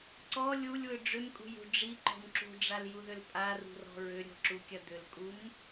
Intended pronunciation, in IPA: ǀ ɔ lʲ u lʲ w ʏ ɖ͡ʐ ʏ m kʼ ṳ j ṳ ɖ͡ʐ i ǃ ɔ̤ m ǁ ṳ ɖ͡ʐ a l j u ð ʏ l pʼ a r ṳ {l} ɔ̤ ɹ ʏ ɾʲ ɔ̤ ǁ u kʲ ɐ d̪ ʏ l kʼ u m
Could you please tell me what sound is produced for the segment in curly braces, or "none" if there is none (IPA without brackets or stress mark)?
r